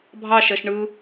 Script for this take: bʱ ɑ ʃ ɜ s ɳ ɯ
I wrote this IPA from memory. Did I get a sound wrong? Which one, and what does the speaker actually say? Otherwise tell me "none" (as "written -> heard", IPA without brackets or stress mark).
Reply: s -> ʃ